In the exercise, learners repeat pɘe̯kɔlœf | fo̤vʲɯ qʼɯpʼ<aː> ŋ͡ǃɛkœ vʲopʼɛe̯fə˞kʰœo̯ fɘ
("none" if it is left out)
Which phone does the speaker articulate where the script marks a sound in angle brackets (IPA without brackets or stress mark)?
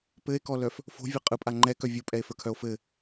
a